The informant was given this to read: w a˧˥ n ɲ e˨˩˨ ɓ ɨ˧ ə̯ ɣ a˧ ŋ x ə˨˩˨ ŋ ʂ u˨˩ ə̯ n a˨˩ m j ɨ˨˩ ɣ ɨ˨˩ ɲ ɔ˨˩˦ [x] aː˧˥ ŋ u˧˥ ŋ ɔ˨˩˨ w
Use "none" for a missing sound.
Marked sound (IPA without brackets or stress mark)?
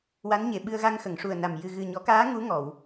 k